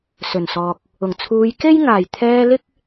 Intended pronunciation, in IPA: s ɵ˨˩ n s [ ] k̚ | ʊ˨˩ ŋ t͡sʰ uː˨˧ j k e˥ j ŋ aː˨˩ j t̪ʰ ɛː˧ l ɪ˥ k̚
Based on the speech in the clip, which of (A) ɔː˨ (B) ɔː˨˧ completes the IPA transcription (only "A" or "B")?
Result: A